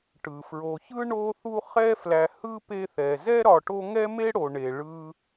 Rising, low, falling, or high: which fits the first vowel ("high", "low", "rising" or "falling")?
low